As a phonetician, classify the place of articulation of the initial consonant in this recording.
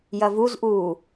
palatal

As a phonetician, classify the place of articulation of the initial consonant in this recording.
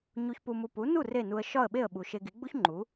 palatal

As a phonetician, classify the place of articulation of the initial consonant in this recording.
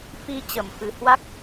labial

